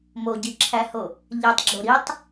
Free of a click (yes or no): no